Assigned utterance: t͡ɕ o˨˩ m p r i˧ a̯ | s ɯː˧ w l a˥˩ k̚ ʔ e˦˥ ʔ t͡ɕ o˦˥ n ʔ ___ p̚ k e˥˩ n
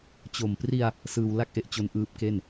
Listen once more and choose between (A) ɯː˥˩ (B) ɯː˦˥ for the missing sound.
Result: B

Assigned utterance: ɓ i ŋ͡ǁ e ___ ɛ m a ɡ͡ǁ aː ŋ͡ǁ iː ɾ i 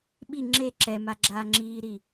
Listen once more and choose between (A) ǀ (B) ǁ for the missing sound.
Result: B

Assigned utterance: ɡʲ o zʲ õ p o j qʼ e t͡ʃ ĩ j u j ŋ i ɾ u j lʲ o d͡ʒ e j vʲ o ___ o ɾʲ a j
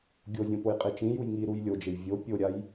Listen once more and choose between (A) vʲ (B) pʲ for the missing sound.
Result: B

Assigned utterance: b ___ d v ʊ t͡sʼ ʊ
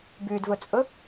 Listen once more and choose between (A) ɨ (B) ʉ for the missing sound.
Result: B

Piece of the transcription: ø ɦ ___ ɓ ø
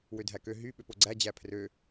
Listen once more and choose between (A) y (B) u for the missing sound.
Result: A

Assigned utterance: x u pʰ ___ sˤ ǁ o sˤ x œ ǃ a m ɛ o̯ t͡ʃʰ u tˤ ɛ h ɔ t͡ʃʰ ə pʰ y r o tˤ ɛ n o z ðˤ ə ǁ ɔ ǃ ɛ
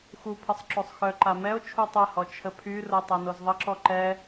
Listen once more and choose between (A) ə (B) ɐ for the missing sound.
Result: A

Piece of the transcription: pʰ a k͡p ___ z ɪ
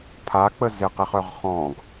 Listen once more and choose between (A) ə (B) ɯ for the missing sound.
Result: A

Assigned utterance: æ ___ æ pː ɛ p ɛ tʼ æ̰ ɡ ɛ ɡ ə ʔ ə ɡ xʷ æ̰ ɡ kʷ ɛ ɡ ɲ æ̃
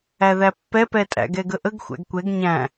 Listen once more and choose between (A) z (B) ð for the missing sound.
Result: B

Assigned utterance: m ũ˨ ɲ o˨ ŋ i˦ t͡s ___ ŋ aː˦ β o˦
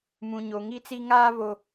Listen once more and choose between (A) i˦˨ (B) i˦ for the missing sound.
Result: B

